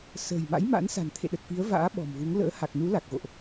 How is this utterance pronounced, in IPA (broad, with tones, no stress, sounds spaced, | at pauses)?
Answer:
s ə̤ː˨˩ j m a̰˧˥ j m a̰˧˥ n s a̤˨˩ n t̪ʰ ḛ˧˨ ɗ ə˨˩ t̚ f i˨˦ ə̯ v a̰ː˧˥ ɓ ɔ̤˨˩ m v u˨˦ ŋ l ə̰ː˧˥ h a˨˩ k̚ n u˨˦ l a˨˩ k̚ ɣ o̰˧˨ ʔ